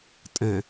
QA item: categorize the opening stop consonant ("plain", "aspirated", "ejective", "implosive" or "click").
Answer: ejective